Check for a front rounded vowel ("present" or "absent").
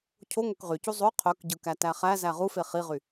present